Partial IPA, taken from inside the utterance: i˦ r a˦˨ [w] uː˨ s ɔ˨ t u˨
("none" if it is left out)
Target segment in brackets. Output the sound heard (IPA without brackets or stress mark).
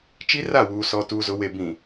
w